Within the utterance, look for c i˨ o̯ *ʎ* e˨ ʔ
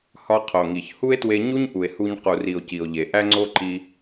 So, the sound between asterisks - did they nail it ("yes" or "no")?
yes